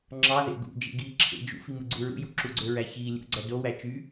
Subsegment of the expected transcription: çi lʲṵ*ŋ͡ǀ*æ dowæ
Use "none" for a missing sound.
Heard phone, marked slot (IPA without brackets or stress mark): ɡ͡ǀ